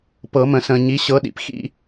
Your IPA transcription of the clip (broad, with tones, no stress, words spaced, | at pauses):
pɤ˨˩˦mə̃˨˩˦sə̃ː˨ ɲi˨˥ɕɤ˨˥ɗḭ˨p xḭ˦